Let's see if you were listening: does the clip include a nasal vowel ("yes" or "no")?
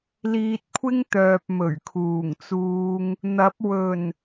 no